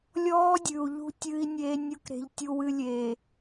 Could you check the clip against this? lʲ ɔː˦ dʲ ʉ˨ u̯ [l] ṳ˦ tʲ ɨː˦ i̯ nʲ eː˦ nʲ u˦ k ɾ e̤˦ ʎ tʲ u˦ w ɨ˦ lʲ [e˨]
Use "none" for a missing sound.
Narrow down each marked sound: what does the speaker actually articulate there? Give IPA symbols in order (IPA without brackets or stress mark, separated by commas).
ʎ, e˨